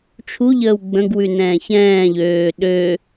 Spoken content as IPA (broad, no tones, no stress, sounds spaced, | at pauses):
t͡ʃʰ u ʎ əː w ɡ͡b ə̃ ɡ w ʉ n ɛ̃ː ç ɛ̃ː ʎ øː ɗ ø